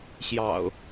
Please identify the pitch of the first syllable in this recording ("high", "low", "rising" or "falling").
low